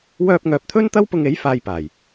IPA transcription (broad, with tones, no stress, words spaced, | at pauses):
wœː˧p̚ŋœː˨p̚t̪ʰɵ˥nt̪ɐ˥w pʊ˧ŋe˨˥j faː˧jpaː˨˩j